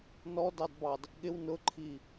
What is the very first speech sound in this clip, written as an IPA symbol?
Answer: n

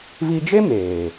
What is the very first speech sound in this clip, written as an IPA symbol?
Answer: v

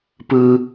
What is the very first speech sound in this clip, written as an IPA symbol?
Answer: p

